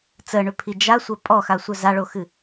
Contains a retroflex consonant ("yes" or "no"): yes